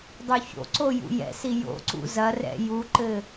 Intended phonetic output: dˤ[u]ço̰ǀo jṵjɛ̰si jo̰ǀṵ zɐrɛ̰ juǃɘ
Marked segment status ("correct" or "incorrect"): correct